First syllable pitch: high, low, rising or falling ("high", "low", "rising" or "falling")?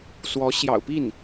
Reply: rising